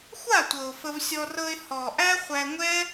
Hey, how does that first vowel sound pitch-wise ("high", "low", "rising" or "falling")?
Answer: falling